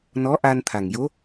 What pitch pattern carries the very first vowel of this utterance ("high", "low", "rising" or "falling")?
rising